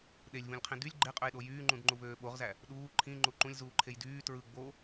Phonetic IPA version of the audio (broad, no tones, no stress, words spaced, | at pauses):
ɗelʲvũlʲqʰĩ dylʲ ɡ͡ǃeqʼøjɗo jyːŋ͡ǃũdŋ͡ǃuvøː ɓoʁzæ | ɗuː ǃʰĩŋ͡ǃu ǃũlʲzuːǃʰej dyː tɹɯ ɡ͡bo